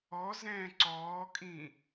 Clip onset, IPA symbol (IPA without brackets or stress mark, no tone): ɔ